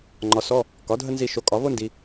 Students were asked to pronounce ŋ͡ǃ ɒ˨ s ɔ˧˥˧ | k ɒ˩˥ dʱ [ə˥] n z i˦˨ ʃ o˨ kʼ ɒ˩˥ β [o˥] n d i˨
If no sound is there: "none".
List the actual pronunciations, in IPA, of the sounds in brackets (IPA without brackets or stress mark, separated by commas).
ə˥, o˥